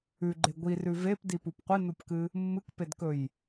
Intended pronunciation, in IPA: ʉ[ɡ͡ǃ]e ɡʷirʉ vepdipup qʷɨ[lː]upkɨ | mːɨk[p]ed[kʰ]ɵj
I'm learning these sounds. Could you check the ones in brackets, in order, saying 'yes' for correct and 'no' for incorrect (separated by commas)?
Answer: yes, no, yes, no